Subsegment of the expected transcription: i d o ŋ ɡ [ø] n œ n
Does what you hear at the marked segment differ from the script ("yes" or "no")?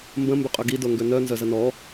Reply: no